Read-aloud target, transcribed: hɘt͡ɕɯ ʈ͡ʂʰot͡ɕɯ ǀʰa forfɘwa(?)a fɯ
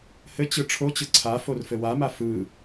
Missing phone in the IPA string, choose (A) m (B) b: A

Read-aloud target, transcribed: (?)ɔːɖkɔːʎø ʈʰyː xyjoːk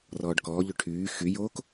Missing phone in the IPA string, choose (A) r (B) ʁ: A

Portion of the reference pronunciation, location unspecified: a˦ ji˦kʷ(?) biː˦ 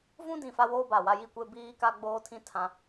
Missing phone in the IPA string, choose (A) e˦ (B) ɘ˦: A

